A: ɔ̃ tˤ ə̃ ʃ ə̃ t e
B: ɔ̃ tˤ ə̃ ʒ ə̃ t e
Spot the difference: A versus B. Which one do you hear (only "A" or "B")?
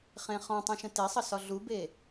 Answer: A